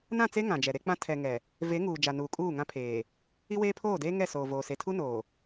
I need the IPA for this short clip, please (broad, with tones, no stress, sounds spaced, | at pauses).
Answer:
n ã˦˨ t͡s e˦ ŋ ã˨ d͡ʒ ɛ˨ ɾ e˦ k͡p ã˦ tʰ ɛ˨ ŋ ɛ˨ | v e˨˦ ŋ uː˨ d͡ʒ a˨ n uː˨ kʼ uː˦˨ ŋ ã˦ pʰ eː˨ | i˦ w eː˦ pʰ oː˦˨ d eː˦ ŋ ɛ˦˨ s oː˨ v oː˨ s e˨ tʰ u˦ n oː˨